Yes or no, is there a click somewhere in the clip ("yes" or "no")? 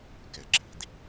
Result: yes